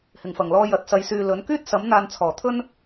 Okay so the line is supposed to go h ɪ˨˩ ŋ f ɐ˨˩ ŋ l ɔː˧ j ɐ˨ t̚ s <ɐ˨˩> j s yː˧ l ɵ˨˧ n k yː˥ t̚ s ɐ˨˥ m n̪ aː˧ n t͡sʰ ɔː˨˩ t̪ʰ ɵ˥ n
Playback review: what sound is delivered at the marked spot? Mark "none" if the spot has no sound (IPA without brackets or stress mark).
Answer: ɐ˧